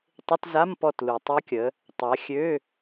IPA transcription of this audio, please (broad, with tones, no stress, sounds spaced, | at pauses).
tˤ ɪ˧˥˧ t z a˧˥˧ m p ɔ˦˨ t l u˨ tˤ œ˦˥ kʲ ə˨˦ | tˤ a˨˦ xʲ ø˧˥˧